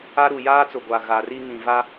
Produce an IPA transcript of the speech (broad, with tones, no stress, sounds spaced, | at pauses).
a˦ ɾ u˨ j aː˦ t͡s ʊ˨ ɡʷ a˨ ɣ a˨ r i˦ ŋ ĩ˨ v a˦